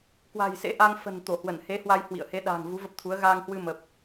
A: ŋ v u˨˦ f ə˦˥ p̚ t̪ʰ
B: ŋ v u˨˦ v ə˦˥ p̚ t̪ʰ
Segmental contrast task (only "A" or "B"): B